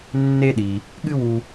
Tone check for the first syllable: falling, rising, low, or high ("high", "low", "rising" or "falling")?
high